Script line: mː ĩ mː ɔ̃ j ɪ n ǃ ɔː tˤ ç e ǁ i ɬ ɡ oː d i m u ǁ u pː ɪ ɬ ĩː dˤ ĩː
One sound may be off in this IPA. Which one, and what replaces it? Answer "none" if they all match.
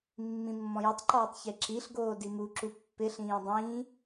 n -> tˤ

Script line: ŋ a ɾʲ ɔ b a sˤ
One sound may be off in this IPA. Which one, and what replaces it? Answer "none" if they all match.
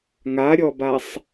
none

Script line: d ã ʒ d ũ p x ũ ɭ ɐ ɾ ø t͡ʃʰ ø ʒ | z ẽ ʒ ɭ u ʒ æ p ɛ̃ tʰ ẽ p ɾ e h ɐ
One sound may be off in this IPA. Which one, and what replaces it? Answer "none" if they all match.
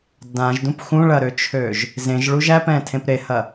none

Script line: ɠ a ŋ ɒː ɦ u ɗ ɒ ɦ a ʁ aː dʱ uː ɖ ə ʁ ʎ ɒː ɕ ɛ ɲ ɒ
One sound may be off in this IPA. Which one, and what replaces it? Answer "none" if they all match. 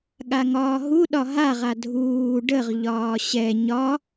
aː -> a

